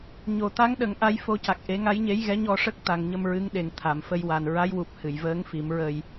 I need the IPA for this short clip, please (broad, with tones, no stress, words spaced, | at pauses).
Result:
ɲo˨˩˨ t̪a˧˥ŋɗə˨˩˦ŋ ʔa˧˥jfo˧˥ca˨˩k̚ ʔe˨˩˦ŋa˧˥jɲe˧˥j ɣɛ˧˥ɲɔ˧ ʂə˦˥k̚t̪a˨˩ŋ ɲə˧mɹɨ˧˥ŋɗe˨˩ŋ t̪ʰa˨˩˨m fə˧jwa˨˩n ɹa˧˥jwu˨˩p̚ hɨ˨˩˨jvəː˧˥ŋ fi˨˩˦mɹə˧j